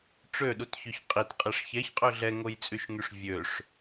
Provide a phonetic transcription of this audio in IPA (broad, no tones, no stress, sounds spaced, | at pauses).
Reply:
ʈ͡ʂ ø ɗ u t ç ø ç qʼ i t qʼ e ʂ ç ɛ ç qʼ ø ɮ ɛ ŋ o j t͡sʼ y ʃ ŋ y ʂ vʲ ø ʂ